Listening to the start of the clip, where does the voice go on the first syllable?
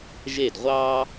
falling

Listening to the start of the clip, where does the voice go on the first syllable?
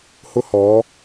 high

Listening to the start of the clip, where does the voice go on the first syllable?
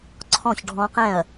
falling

